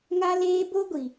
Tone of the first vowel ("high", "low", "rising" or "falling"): high